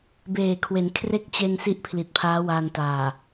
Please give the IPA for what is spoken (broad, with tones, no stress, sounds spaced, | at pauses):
b eː˨˩ kʰ w e˩˦ n kʰ r e˦˥ k̚ t͡ɕ e˧ n s i˦˥ ʔ pʰ l i˨˩ t̚ pʰ aː˦˥ w aː˧ n t aː˨˩